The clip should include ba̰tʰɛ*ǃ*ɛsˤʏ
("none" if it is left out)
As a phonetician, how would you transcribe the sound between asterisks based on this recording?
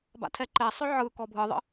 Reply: ǃ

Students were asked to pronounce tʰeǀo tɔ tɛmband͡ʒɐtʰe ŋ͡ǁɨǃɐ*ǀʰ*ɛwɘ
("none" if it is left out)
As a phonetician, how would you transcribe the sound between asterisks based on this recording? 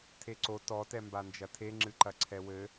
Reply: ǀʰ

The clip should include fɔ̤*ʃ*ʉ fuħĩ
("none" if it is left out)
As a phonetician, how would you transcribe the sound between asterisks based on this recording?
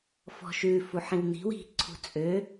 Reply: ʃ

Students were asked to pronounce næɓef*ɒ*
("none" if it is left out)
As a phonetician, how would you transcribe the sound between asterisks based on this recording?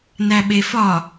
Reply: ɒ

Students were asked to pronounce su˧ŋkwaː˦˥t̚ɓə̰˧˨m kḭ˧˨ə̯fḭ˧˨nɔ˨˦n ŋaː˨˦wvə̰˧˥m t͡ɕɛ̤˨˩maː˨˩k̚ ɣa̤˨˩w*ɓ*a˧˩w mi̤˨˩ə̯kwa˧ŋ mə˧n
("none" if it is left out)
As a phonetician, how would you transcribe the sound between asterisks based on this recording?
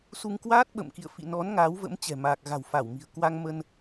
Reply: f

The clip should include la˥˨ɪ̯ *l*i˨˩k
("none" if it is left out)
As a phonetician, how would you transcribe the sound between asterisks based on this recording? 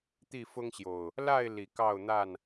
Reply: l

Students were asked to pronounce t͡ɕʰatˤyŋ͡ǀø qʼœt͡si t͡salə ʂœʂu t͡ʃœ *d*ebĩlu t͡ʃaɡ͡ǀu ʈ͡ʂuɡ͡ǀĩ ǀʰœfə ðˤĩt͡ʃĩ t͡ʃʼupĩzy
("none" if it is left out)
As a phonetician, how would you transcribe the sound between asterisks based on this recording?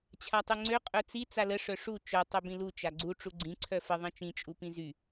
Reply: tˤ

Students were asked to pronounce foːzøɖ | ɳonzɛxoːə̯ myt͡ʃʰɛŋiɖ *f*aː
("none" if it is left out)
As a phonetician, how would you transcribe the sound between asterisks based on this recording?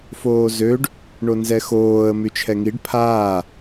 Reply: pʰ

